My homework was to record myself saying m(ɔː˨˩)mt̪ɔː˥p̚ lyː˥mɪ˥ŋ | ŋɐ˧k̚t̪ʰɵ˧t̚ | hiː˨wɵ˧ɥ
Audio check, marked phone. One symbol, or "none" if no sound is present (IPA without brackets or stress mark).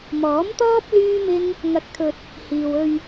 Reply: ɔː˨˥